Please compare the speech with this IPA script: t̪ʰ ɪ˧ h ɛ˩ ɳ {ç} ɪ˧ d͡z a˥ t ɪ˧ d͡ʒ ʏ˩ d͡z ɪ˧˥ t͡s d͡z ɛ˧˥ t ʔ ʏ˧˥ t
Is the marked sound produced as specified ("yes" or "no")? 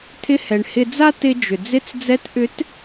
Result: no